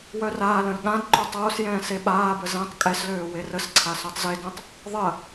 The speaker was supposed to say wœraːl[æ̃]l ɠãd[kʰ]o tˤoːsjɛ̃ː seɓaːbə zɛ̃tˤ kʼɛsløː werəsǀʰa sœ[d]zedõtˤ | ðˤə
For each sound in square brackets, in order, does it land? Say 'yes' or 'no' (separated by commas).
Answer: no, no, no